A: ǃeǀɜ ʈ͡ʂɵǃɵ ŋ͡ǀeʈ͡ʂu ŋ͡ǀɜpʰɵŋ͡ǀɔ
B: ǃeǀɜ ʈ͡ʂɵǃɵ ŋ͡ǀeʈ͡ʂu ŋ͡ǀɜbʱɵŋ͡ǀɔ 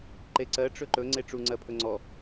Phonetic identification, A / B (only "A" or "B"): A